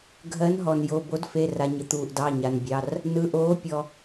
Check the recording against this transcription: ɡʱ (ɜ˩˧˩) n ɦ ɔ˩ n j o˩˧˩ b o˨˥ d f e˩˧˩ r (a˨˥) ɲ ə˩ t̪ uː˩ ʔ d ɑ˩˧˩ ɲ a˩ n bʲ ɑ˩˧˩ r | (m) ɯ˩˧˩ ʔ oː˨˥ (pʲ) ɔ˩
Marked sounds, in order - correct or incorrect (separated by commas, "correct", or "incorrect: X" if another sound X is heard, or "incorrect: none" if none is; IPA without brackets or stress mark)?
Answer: incorrect: ɜ˨˥, incorrect: a˩, incorrect: n, correct